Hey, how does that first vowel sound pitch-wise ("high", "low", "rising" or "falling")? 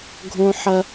high